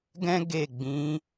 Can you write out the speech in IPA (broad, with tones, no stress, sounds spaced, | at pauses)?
ɡ ɛ̃˦ ɡ e˦˨ ɡ͡b ĩ˨˦